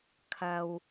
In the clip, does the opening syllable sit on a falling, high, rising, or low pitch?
low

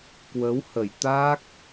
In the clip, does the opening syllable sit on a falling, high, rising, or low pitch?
rising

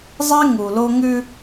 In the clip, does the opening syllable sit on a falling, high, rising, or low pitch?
high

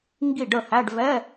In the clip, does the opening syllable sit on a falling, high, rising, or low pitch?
falling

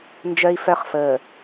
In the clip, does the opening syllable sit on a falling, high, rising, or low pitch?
high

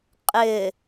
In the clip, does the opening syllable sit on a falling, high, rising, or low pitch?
low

